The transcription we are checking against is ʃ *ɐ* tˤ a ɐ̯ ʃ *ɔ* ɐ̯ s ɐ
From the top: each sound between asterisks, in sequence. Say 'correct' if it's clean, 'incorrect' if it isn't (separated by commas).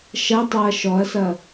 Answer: correct, correct